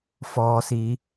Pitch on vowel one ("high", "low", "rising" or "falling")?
low